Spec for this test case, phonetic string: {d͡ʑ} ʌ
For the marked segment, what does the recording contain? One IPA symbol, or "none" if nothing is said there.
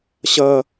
ɕ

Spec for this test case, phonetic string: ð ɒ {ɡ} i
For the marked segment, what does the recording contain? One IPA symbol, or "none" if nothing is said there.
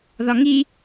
ŋ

